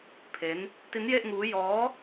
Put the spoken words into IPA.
pʰ e˦˥ n | t i˦˥ n j e˥˩ ʔ ŋ uː˦˥ j ɔː˦˥

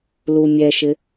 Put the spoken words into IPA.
l u mʲ ɛ ʃ ɪ

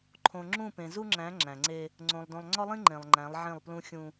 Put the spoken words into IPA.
ǃʰ õ˨ ŋ͡ǁ ũ˦˨ p ẽ˨ z u˦ ŋ͡ǁ æ̃˨˦ ŋ͡ǁ æ̃˨ ŋ͡ǀ e˦ | ŋ͡ǀ õ˨ lˠ d õ˨ lˠ ŋ͡ǀ ɒ˦ lˠ ĩ˦ ŋ͡ǃ ẽ˨ lˠ ŋ͡ǃ æ̃˨˦ lˠ ʕ ẽ˦˨ lˠ p l ũ˦ xʲ ũ˦

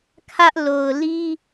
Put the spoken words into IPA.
kʰ ä˦ ʔ l o˨ ʊ̯ l i˦

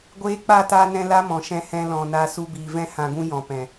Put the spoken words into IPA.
ɡʷ eː˧ k͡p a˦˨ t aː˧ n ɛ̃˧ l a˦ m ɔ̃˨ ʃ ɛ̃˧ h ɛ̃˧ l ɔ̃˨ n a˧ s u˧ b iː˨ v ɛ̃˦ h ã˧ ɡ ũ˦ j ɔ̃˨ p ɛ̃˨

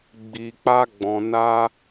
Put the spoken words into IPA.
ɡ͡b i˨ k͡p a˧ ɡ͡b ɔ̃˨ n a˧

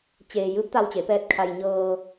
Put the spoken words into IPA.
t͡ɕ eː˧ j ɯː˧˥ p̚ t̪ a˧ w t͡ɕ e˩˧ p ɛː˧ t̚ kʰ a˧ j ɲ ɤː˧

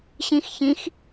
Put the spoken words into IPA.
ɕ ĩ x ç ĩ x

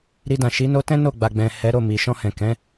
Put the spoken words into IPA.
ɾ i˧ d ã˨ ʃ i˨˦ n o˦ t ɛ̃˦ n o˦˨ ɡ͡b a˨ ɡ͡b ɛ̃˨ h ɛ˨˦ ɾ o˦˨ m i˨ ʃ ɔ̃˧ h ɛ̃˨ k ɛ̃˨˦

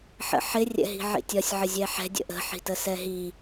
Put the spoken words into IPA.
ħ ə̰ ħ ɪ rʲ ɛ̰ ɦ i̤ ʕ ḭ tʲ ɒ sʲ ʕ ə zʲ ɛ ħ ɛ̤ dʲ ə̰ ʔ ə̤ ħ i̤ t ə s ɛ ɦ i

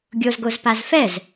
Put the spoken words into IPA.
ɡʲ o z ɡ o z p a z f ɛ z

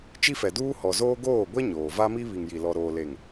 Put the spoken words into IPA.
t͡ʃ i˦ f ɛ˨ d uː˦ h ɔ˨ z oː˦ ɡ oː˦˨ ɡʷ ɛ˦ ɲ oː˨ v a˦ m i˦ β i˨ ŋ j i˨ l ɔ˨ ɾ oː˨ l e˨ ŋ

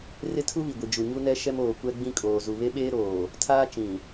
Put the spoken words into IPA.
r ɪ˦ tʰ u˦ β i˨ ɡʷ i˨ d͡ʒ u˨ ɲ u˦ n ɛ˦ ʃ ɛ˦ m oː˨ kʷ ɛ˦ ɡ͡b ĩ˦ kʼ oː˨ z u˨ β e˦ ɓ eː˦ ɾ oː˨ | tʰ aː˦ t͡ʃ ĩ˨

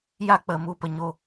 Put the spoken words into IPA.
j a˦ k͡p ə˨ m u˧ p ə˨ ɲ o˦˨

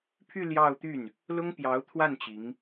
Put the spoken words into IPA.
pʰ y˥˧ l j ɑ˥˧ ʊ̯ t̪ y˥˩ n | l ʊ˥ ŋ p j ɑ˧˥ ʊ̯ t̪ʰ w a˥˩ n t͡ɕ i˧˥ ŋ

